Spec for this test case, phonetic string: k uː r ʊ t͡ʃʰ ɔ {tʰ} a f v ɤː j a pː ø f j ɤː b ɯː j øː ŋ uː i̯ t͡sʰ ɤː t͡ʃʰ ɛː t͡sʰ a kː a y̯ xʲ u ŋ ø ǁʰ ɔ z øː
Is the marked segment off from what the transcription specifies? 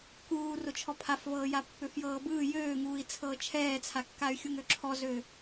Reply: yes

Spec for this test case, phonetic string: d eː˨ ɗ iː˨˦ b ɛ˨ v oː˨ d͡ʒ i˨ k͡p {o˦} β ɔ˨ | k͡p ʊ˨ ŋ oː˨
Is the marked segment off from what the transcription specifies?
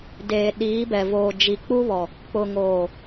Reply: yes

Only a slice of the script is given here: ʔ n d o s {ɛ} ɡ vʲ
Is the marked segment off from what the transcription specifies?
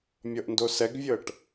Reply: no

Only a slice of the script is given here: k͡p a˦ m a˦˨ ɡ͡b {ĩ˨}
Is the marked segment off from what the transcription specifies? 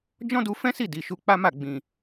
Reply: no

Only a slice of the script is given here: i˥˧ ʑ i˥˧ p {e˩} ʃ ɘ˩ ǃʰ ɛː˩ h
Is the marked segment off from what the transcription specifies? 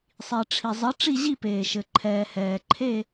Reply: yes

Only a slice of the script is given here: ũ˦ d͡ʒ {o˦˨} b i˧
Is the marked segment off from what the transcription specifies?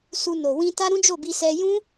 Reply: no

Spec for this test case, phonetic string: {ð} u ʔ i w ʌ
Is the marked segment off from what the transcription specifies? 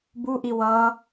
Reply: yes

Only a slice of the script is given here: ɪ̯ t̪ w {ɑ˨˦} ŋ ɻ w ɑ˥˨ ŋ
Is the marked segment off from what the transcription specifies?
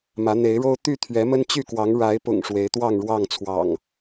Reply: yes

